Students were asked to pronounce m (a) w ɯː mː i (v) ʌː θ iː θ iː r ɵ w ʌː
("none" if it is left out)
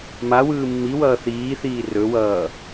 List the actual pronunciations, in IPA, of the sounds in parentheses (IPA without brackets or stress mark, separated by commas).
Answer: a, w